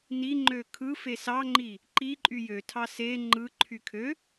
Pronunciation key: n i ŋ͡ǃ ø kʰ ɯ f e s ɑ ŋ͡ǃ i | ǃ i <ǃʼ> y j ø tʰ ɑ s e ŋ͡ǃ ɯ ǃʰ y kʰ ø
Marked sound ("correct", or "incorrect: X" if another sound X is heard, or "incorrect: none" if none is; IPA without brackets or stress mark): correct